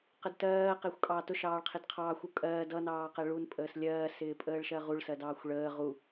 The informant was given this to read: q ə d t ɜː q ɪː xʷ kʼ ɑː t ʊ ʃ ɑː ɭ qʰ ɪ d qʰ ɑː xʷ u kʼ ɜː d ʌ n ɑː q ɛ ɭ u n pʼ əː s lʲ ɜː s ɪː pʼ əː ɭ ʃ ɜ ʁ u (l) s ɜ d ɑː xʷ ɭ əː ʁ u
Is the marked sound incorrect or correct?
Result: incorrect